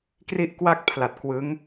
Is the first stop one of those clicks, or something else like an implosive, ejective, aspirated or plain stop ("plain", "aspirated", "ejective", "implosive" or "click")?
plain